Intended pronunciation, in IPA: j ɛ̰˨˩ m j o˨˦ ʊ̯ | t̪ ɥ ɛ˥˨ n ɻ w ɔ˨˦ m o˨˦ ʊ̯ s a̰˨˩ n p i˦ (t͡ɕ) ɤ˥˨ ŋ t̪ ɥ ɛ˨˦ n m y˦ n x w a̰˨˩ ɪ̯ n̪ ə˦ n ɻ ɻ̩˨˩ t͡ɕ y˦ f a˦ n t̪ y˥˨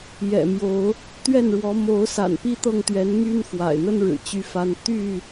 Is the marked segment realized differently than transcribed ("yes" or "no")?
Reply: yes